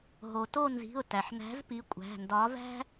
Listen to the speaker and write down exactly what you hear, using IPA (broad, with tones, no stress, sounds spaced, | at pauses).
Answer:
ɦ o˩ t o˦˨ n z i̤˩˧˩ ʊ̯ t æ˩ ħ n æ̤˨˥ z p i˨˥ kʷʼ æ̤˩˧˩ n d ɒ˨˥ v æ̤˥